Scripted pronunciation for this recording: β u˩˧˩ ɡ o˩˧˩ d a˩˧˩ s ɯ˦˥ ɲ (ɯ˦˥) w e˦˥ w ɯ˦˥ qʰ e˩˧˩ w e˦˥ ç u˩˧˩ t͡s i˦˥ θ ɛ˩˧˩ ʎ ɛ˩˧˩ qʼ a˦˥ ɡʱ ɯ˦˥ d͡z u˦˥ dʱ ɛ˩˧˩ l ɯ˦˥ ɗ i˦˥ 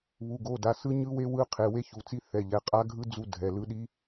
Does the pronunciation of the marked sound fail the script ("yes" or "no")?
no